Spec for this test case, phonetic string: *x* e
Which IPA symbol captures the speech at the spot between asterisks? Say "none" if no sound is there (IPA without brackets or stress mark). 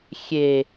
xʲ